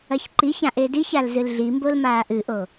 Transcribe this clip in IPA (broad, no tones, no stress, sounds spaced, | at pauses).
ɐ ç ǃ i ç ã ʔ e d i ç a l z ɨ l ɮ i m b o l m aː ʔ ɨ ʔ o